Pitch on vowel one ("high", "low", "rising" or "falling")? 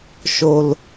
high